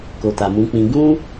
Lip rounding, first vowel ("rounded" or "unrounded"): rounded